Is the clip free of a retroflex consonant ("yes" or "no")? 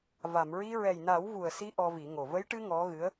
no